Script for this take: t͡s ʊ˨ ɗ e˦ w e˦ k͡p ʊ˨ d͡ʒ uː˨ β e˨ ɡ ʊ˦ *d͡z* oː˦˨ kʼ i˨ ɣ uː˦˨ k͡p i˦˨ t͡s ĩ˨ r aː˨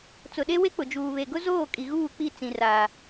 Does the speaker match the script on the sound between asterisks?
no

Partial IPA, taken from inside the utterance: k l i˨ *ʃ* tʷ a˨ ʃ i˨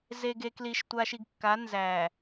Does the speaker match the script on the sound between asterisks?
yes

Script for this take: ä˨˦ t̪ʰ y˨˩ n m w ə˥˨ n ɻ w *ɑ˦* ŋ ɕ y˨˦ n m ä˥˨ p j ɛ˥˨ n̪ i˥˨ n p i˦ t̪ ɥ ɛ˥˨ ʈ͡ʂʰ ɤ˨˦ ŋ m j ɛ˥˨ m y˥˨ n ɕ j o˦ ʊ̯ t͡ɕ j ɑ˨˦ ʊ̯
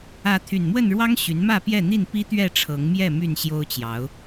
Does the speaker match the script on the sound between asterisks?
yes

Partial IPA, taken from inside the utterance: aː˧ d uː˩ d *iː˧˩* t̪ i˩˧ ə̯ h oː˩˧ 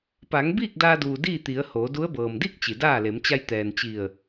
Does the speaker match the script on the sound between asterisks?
no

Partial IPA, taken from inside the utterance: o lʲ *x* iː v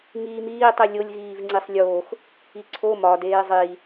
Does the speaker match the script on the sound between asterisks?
no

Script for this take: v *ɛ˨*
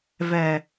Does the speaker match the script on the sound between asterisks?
yes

